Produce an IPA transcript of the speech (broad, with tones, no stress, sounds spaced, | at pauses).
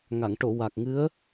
ŋ a˨˩˨ ŋ ʈ o˨˩˨ w a˨˩ k̚ ŋ ɨ˧˥ ə̯